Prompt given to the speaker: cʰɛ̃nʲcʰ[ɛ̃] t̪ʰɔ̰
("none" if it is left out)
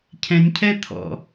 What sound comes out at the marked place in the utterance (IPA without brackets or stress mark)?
ɛ